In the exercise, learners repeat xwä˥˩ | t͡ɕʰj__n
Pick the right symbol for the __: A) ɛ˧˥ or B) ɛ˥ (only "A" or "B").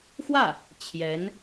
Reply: A